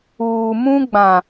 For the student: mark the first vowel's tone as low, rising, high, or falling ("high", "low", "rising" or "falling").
low